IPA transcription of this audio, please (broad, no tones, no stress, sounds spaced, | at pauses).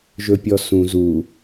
ʒ ɵ pʲ ɔ s ũ z u